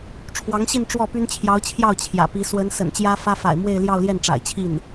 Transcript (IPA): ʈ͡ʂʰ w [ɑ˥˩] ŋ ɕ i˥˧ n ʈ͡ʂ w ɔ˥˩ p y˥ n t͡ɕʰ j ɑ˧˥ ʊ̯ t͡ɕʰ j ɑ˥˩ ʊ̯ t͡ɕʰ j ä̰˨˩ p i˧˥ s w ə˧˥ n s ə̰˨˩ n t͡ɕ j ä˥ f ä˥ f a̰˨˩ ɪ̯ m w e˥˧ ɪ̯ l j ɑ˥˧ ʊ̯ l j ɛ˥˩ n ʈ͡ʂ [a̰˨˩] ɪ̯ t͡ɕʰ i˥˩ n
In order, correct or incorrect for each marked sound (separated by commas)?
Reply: incorrect, correct